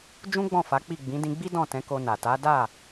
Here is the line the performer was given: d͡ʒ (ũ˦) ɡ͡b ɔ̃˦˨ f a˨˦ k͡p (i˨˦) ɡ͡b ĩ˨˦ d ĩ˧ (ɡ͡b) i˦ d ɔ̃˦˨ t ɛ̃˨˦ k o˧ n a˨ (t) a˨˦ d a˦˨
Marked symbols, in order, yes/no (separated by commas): yes, no, yes, yes